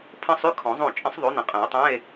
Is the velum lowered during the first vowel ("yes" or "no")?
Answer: yes